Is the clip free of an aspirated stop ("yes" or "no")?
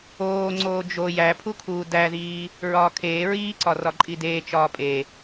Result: no